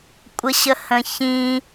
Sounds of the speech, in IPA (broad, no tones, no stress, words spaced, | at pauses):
kʷʼəɕəhə̃çĩ